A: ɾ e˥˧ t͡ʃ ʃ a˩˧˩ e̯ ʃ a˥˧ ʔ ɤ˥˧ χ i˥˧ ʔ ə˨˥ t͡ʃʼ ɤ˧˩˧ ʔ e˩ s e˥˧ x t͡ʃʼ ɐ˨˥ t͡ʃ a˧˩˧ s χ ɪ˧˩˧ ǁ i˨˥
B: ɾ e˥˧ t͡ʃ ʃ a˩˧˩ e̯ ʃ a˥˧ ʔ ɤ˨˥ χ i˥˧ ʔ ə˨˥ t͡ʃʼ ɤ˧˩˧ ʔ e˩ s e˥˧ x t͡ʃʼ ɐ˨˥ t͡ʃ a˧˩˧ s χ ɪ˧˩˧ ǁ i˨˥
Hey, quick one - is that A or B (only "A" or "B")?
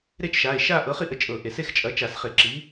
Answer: B